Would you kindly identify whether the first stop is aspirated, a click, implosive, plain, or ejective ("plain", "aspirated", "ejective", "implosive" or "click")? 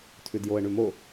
aspirated